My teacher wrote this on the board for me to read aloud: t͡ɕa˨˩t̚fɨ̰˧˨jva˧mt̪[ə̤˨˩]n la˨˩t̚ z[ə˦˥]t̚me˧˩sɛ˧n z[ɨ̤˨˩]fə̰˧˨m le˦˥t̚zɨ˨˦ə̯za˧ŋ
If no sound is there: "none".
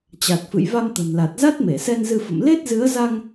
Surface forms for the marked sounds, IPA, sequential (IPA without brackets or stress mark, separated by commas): ə̤˨˩, a˦˥, ɨ˧